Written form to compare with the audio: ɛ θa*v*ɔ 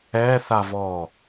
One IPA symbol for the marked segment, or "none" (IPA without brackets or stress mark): v